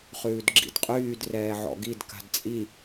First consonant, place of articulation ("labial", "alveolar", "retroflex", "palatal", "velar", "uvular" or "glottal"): uvular